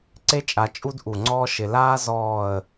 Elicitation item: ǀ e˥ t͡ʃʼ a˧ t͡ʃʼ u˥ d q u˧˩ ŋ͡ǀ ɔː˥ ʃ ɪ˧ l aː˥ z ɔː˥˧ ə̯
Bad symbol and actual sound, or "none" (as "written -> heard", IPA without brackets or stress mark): q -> ʔ